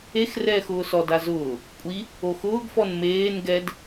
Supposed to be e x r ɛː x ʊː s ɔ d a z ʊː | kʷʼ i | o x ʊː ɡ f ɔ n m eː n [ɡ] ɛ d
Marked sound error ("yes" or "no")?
no